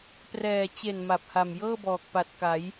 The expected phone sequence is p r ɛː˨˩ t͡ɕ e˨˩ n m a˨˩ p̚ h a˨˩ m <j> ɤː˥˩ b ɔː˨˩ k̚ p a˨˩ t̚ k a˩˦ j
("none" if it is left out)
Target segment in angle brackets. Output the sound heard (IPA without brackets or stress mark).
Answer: j